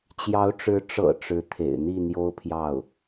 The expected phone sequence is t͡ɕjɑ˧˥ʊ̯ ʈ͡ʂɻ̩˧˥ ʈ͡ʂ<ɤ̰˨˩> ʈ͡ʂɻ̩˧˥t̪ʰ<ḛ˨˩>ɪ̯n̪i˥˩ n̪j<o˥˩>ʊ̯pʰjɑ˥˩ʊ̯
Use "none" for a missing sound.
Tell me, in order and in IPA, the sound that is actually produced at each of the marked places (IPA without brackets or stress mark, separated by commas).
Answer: ɤ̰˨˩, ḛ˨˩, o˥